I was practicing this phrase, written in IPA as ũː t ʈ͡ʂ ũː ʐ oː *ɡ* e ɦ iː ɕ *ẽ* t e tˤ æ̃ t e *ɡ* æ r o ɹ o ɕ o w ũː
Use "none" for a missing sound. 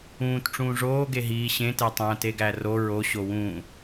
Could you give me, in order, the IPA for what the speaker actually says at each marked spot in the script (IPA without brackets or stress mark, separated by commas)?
ɡ, ẽ, ɡ